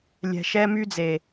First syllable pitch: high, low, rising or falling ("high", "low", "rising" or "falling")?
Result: low